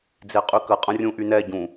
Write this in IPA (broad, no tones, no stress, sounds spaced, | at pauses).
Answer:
d͡z e qʼ y k ə qʼ ə̃ rʲ ũ ʔ y n ɛ ɟ ũ